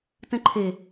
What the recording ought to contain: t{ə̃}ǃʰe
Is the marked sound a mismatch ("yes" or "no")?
no